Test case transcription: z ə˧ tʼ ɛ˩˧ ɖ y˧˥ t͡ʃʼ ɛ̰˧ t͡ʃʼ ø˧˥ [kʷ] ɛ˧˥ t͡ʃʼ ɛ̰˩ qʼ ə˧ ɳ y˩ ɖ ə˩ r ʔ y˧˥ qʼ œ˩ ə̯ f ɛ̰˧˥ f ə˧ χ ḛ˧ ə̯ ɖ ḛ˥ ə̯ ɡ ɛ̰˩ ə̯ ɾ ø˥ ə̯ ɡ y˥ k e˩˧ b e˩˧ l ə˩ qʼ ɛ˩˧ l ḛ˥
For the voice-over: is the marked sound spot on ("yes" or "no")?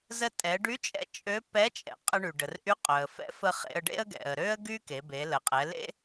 no